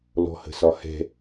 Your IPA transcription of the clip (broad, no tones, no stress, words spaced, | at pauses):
lɔ̤hə̤sɒhɛ̤